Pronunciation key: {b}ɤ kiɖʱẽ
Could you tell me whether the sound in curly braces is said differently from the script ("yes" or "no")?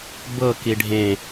no